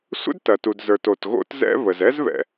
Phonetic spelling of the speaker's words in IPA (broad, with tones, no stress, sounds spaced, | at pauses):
sʷ ə̰˥ d t ɐ˩ t u˩ d z ə˞˩ t o˩ t ɣ o̰˥ t z ɛ̰˥ β ə˩ z ɛ˥ z β ɛ̰˩